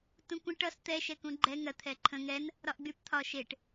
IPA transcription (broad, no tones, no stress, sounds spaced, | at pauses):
t ũ kʷ ə̃ ʈ ʌ s t̪ ɛ ʃ ɛ k ũ ɡ͡ǃ ɛ ŋ ɜ t̪ʰ ɛ ǃʰ ə̃ ŋ ɛ n | ɾ ɒ ʔ ɡ͡b y p t̪ʰ ɒ ʃ e ʈ